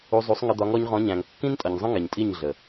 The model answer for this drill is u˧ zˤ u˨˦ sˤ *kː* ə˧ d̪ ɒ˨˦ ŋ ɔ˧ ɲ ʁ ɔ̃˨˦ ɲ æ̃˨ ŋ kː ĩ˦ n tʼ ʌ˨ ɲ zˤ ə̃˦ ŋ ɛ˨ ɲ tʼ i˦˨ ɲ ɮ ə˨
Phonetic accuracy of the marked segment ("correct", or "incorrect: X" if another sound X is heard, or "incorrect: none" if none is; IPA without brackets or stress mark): incorrect: ŋ